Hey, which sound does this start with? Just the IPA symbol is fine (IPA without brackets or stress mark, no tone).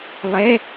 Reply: lˠ